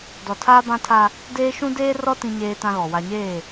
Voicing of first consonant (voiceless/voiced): voiced